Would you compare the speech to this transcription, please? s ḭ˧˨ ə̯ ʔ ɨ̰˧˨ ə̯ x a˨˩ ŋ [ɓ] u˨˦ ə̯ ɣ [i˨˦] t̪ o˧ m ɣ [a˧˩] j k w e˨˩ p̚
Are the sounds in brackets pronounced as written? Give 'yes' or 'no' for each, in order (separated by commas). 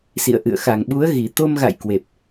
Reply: yes, no, no